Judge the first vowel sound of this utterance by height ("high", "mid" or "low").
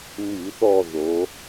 high